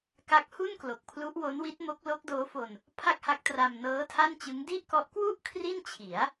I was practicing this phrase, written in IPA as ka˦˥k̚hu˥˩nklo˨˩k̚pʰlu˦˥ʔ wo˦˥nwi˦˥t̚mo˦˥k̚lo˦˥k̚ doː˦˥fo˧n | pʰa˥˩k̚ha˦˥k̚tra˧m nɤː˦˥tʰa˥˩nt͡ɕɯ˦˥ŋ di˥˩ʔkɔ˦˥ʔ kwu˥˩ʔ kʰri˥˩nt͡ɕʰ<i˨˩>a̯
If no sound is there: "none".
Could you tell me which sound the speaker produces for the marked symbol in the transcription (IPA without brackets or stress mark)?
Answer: i˩˦